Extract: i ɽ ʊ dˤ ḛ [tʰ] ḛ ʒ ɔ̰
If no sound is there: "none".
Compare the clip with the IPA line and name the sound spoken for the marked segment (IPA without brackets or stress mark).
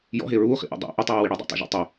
tˤ